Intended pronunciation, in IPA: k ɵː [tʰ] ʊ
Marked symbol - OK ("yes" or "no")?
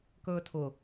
yes